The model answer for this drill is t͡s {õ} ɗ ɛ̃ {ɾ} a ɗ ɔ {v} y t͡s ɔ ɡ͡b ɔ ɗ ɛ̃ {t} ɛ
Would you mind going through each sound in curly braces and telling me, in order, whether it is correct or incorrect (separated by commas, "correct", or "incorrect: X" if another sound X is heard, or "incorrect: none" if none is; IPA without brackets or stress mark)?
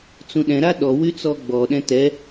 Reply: incorrect: ũ, correct, incorrect: w, correct